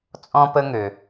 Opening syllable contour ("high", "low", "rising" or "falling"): high